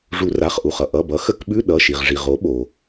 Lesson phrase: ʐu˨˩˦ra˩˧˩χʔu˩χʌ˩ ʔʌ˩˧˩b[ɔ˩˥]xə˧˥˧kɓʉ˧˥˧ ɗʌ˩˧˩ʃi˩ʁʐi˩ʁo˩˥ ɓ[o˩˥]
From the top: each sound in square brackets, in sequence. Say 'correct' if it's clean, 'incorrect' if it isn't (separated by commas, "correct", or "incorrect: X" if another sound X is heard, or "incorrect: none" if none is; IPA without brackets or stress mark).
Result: incorrect: ʌ˩˥, incorrect: o˩